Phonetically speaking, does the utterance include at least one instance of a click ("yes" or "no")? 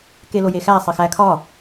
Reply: no